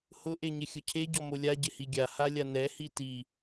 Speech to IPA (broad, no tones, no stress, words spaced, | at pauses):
hʊ ʔeɲɪxʲʊcʰe ɟɔmolʲa ɟɪhiɡʲa halʲanɛ hiti